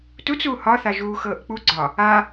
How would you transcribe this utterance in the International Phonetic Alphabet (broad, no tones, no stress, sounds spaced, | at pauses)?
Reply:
t u t͡s uː h ɒ θ a ʒ uː x ɤː ʔ k͡p u ɡ͡ǀ ɒ | a